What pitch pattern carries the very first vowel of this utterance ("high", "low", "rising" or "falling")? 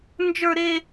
high